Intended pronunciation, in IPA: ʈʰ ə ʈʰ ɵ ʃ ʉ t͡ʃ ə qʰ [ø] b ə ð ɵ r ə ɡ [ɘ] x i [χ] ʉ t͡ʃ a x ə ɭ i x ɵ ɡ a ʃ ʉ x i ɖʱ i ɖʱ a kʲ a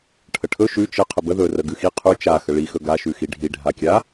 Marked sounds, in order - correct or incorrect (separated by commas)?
incorrect, incorrect, incorrect